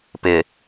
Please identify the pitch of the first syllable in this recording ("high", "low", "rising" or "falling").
low